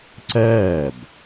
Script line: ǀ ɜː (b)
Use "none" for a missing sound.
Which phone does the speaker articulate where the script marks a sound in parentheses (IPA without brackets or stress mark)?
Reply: b